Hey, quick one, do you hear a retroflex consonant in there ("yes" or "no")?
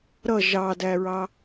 no